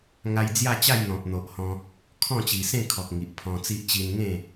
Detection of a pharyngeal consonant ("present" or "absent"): absent